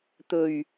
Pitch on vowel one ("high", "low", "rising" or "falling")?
low